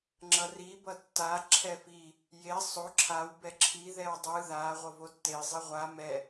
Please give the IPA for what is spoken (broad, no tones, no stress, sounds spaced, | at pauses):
ŋ͡ǁ ʌ r i b ʌ tː a ǁʰ ɛ f i | j e sˤ o ǁʰ a w b ɛ ǁʰ i ð ɛ w dˤ ɯ ð a ʁʷ ʌ v o tː e zˤ i ʁʷ a m ɛ